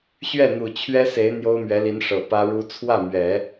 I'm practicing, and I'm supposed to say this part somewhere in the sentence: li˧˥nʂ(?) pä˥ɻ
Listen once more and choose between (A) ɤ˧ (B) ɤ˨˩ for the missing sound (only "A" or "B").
B